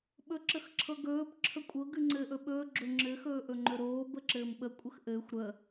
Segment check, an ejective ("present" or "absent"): present